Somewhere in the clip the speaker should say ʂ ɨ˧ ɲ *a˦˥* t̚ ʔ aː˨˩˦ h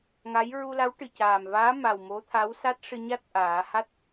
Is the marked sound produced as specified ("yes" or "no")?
yes